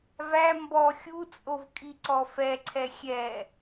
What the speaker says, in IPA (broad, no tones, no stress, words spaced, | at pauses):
væ mbɔ xʲut͡sʼovkʼi ǀɔfɛǀʰɛ xʲɛ